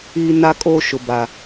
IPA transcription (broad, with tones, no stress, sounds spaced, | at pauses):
iː˦ n a˦ kʼ oː˦ ʃ ʊ˨ b a˨